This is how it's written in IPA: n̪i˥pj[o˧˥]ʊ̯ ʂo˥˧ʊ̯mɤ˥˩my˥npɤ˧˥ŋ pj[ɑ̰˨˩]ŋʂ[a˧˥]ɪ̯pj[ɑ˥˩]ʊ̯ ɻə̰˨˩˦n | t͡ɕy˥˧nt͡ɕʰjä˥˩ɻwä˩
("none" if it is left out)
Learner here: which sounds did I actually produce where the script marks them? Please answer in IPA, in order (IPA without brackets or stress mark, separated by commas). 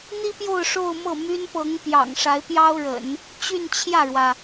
o˥˧, ɑ̰˨˩, a˧˥, ɑ˥